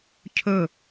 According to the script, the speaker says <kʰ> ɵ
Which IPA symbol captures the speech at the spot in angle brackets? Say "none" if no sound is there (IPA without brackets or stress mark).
cʰ